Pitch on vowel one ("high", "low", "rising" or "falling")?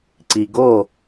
low